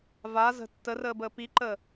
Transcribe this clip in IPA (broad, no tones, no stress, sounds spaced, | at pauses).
v a z ə̤ tː ə r əː b əː p i ǃ əː